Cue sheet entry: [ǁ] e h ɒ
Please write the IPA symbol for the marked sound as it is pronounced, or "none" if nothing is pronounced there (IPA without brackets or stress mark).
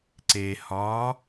ǀ